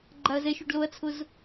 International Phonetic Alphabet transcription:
ɡ͡ǃ a ɐ̯ z ɛ ʃ u ɖ l o ɐ̯ t͡sʰ ʊ z

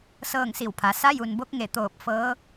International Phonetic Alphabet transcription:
s ɤː˥˨ ŋ s i˧˩ w pʰ a˩˧ s a˧˥ j u˩ n b o˧˥ k̚ ŋ e˧˩ t̪ oː˧˩ p̚ f ɤː˧˥

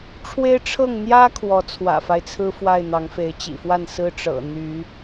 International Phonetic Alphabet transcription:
ʈ͡ʂʰ w e˦ ɪ̯ ʈ͡ʂʰ ɤ˥˨ ŋ n̪ j ä˦ kʰ w ɔ˨˦ t͡sʰ w ä̰˨˩ f a˦ ɪ̯ t͡sʰ ɹ̩˦ f w a˥˨ ɪ̯ n̪ ɑ˨˦ ŋ f e˨˦ ɪ̯ t͡ɕ ḭ˨˩ f w a˥˨ n s ɹ̩˦ ʈ͡ʂ ɤ̰˨˩ n̪ y˨˦

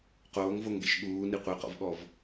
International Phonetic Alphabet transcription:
q oː ŋ v o ŋ ɡ ḛ ʃ ɠ uː n i qʷ e q ɔ̰ v ɠ ɔ v

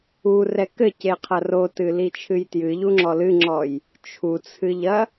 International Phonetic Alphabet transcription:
u r ɛ k ɘ c e qʰ ɐ r o t ɨ l i t͡ʃʰ ɨ j t j ɨ ʎ u ŋ͡ǁ ɔ l ɨ ŋ͡ǁ ɔ j | t͡ʃʰ u t͡sʰ ɨ ʎ ɐ

